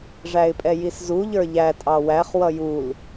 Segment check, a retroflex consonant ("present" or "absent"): present